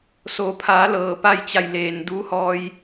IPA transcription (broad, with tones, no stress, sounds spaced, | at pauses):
s o˩˧ pʰ aː˩˧ l ɤː˧˩ p a˥˨ j t͡ɕ a˧˩ j l eː˩ n d uː˧˥ h ɔː˧ j